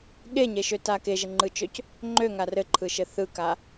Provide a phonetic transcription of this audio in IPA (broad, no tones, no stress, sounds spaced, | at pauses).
ɠ e ɲ e ʃ ø t a k e ʒ ɘ ŋ͡ǃ ɯ t͡ʃ ø c | ŋ͡ǃ ø ŋ a r ɘ ǃʰ ɯ ʃ ɘ θ ɯ k a